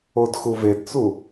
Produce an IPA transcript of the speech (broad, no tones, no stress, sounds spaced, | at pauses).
o d x u v e d t͡s u